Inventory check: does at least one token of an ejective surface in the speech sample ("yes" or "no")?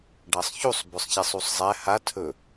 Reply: no